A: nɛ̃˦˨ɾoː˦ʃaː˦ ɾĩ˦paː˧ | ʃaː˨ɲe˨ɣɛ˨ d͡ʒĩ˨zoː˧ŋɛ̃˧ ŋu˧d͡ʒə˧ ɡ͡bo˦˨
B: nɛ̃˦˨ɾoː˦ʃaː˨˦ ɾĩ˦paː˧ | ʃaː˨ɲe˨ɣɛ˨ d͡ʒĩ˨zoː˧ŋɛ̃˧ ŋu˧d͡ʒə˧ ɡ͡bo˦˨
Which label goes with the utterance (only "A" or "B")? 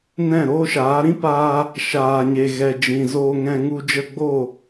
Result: B